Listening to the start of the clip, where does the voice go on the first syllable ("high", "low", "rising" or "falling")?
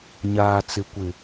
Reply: low